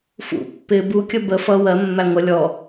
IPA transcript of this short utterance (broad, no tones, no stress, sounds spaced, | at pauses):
f ṵ pː ɪ b u kʲ ə b ə f ʌ w ɜ mː æ ŋʷ ʌ lʲ ɔ